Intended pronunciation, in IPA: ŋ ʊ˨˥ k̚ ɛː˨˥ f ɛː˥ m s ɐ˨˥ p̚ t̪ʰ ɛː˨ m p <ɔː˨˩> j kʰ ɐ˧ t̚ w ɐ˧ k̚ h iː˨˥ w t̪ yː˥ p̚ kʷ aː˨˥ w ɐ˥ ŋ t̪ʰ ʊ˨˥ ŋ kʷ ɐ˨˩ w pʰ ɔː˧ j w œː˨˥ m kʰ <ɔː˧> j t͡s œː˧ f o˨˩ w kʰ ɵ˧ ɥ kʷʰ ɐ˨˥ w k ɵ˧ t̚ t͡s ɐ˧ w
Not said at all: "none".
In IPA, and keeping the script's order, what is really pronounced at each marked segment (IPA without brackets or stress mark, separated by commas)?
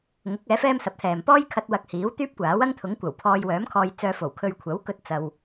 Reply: ɔː˥, ɔː˧